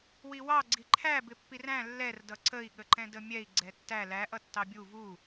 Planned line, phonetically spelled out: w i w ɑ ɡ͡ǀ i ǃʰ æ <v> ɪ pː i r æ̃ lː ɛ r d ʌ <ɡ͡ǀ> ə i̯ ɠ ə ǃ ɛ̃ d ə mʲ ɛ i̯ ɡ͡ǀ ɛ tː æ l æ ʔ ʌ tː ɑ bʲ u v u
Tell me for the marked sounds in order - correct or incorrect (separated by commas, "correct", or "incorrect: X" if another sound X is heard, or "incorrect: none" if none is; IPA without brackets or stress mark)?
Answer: incorrect: b, incorrect: ǀ